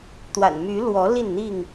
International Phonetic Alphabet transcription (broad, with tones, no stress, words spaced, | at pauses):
t̪wa̰˨˩nmy˨˦lwɔ˨˦ li˥˨nn̪i˥˨ŋ